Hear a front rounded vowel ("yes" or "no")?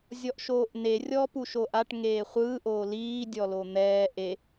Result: no